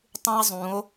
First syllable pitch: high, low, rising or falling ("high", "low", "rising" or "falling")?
high